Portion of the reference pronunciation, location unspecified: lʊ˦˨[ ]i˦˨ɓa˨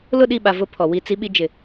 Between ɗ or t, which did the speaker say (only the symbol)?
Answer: ɗ